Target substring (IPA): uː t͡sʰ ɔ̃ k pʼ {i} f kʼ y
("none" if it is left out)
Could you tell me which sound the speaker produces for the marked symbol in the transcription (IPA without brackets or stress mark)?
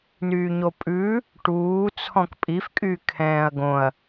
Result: i